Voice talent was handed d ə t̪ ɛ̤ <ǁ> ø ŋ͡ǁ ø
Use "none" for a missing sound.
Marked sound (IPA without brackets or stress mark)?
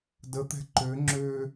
ǃ